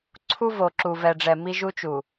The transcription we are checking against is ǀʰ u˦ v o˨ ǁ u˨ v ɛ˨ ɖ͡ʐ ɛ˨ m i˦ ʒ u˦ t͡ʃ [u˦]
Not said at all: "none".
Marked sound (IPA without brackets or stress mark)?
u˨